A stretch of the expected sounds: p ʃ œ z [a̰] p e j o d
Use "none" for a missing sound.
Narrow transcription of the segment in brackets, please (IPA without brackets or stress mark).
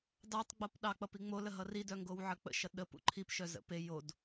ə̰